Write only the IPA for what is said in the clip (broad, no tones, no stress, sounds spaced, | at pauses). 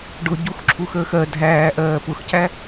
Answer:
ɖ ʊ ɟ u x ǁʰ u x əː x ɜ dʱ æː ʔ ɜː p ʊ x c æ